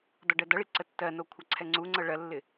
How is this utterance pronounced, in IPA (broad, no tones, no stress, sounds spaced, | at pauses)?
d ɔ ɖ ɜ d ʌ ɭ i ǀ ə tː ɜ n o kʷʰ ʌ ǀʰ ɛ ŋ͡ǀ u ŋ͡ǀ ɤ ɭ ɜ lː ɪ